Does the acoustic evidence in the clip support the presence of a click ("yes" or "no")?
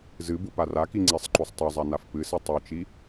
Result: yes